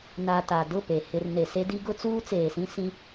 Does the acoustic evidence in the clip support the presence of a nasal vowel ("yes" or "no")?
yes